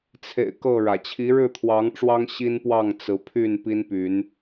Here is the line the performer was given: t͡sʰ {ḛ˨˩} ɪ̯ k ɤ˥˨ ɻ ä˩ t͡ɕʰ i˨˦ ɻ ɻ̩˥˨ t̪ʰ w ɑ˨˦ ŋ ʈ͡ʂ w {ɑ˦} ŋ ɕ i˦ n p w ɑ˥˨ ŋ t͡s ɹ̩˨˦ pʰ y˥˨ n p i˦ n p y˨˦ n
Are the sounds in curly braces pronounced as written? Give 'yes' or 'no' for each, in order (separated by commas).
yes, yes